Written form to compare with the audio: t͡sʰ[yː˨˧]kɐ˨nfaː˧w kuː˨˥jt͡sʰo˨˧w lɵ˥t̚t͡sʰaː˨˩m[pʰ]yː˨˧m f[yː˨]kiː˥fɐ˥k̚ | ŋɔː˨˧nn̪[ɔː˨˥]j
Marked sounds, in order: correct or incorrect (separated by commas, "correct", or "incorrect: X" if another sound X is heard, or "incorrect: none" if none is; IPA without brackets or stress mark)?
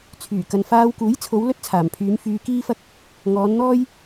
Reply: incorrect: yː˨˩, correct, incorrect: yː˧, incorrect: ɔː˥